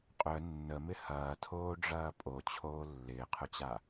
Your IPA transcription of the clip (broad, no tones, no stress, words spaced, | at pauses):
qʼœ nːəmɪ hɐːtʰoːɖ͡ʐɐː pʼot͡ɕʰoː lːɪːqʰʊt͡ɕa